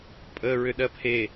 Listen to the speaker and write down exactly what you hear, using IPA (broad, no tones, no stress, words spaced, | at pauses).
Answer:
pʼəːɹʏɗɜpʰe